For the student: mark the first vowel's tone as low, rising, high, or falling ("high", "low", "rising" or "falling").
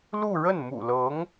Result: falling